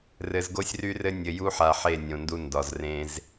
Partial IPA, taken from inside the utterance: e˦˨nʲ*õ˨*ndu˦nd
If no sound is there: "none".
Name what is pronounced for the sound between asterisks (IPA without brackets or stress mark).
õ˨